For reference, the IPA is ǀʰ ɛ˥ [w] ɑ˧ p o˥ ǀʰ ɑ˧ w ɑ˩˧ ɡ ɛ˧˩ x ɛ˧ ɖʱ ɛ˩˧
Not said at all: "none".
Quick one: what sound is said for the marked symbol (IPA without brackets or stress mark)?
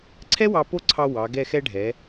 w